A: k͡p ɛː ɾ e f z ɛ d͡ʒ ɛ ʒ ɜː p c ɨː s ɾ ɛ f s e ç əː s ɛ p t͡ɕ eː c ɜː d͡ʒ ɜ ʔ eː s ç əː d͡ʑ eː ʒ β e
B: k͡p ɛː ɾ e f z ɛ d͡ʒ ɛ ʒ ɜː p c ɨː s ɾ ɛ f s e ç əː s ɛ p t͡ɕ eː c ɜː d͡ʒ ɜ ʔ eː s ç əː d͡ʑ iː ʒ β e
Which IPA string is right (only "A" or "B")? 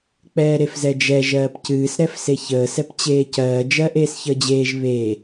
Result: A